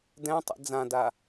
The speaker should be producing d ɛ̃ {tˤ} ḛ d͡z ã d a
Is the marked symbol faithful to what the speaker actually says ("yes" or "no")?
yes